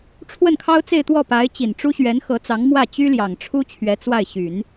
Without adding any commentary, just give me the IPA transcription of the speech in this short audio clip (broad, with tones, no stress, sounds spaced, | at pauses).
ʈ͡ʂʰ w ə˥˩ n kʰ ɑ˥ ʊ̯ t͡s e˥˧ ɪ̯ t̪ w ɔ˥˩ p a˧˥ ɪ̯ t͡ɕ i˨˩ n ʈ͡ʂ u˥ ɕ ɥ ɛ˧˥ n x ɤ˧˥ t͡s ɑ˧˥ ŋ m w ä˥˩ t͡ɕ y˥ l j ɑ˨˩ ŋ ʈ͡ʂʰ u˥ t͡ɕʰ ɥ ɛ˧˥ t͡s w a˥˩ ɪ̯ ɕ y˨˩˦ n